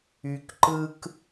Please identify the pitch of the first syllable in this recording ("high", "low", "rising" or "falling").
low